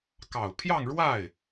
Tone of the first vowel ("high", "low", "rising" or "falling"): low